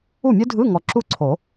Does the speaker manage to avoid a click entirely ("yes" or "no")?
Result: no